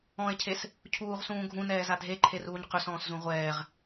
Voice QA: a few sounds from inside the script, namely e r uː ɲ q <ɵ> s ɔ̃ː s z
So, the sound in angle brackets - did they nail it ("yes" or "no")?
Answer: yes